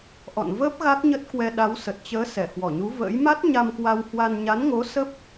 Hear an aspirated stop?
no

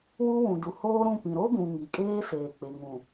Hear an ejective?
yes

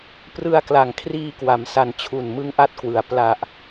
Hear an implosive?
no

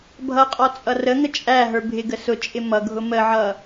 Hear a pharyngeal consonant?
yes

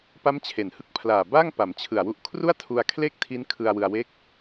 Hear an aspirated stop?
yes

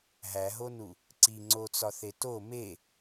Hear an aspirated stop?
no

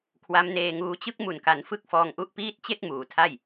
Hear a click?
no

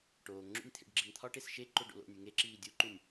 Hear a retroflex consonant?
yes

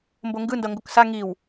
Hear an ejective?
no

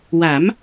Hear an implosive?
no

